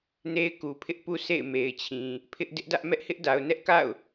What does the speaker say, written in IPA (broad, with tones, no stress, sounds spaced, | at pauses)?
n e˦ ɪ̯ k u˨ pʰ ɪ˦ ʔ p u˦ s ḛ˦˨ ɪ̯ m e˨ ɪ̯ t͡ɕʰ ĩ˨ | pʰ ɪ˦ ʔ d ɪ˦ ʔ d ä˦ ʔ m ɛ˦ ʔ h ɪ˦ ʔ d a˨ ʊ̯ n ɛ˦ ʔ k a̰˦˨ ʊ̯